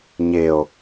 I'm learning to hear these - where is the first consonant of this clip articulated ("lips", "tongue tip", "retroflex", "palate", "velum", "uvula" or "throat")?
palate